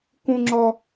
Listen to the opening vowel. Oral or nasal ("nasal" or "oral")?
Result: nasal